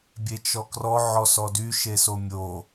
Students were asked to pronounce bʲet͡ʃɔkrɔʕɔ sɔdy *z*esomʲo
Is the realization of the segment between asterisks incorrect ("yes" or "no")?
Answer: yes